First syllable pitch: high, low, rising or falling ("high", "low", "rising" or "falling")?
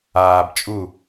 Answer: low